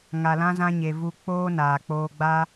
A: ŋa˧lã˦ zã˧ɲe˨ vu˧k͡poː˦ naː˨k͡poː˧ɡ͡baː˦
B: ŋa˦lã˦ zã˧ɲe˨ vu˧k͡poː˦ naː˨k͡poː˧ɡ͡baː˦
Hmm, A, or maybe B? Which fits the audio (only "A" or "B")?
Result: A